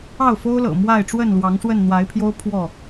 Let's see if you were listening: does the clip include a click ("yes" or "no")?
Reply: no